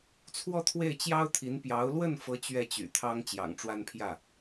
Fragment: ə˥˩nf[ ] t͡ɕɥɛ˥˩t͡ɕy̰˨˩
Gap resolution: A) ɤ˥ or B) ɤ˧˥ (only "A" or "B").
B